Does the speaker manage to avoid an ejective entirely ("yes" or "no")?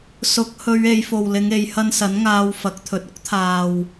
yes